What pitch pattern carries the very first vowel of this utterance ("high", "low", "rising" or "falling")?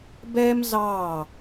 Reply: high